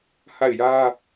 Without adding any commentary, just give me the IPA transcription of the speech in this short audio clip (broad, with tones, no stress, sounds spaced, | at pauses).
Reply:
h a˦˨ ɪ̯ j ä˦